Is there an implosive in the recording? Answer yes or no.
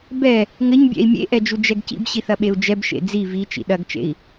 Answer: yes